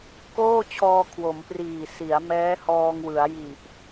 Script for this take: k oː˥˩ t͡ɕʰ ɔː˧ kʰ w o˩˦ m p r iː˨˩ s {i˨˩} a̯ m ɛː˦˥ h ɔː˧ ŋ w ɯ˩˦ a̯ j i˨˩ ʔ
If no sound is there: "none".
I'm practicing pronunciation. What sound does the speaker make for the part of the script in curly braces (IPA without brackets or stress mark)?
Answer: i˩˦